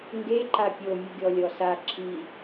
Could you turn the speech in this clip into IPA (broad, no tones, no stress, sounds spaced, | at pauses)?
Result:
ŋ ɡ e ǃ a pʲ o mʲ ɯ ɡʲ ɔ lʲ ɔ s a ǁʰ i